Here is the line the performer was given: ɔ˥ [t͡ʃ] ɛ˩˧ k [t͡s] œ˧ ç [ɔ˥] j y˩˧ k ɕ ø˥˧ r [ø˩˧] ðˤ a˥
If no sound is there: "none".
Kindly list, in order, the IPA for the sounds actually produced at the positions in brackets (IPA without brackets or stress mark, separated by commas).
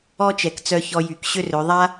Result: t͡ʃ, t͡s, ɔ˧, ø˩˧